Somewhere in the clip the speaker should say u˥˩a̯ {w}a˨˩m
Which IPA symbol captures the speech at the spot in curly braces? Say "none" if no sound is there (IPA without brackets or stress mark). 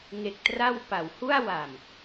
w